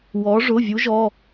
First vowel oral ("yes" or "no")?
yes